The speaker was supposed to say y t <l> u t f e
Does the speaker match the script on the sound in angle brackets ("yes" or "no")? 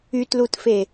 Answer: yes